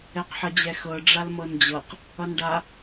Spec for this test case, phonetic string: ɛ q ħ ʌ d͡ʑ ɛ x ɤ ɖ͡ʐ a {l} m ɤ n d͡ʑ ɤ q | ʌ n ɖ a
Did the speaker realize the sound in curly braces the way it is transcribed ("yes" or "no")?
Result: yes